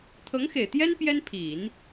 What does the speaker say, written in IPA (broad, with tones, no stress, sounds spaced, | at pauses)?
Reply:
t̪ʰ ɤ˧˥ ŋ x e˨˩ ɪ̯ t̪ j ɛ˥ n p j ɛ˥ n pʰ i˨˩˦ n